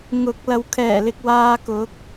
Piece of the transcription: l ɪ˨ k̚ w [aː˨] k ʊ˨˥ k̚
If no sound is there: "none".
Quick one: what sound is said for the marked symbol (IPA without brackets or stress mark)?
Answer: aː˧